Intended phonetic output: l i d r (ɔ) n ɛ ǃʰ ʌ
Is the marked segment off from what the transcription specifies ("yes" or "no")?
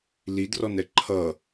no